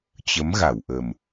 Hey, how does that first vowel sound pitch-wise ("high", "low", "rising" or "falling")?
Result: rising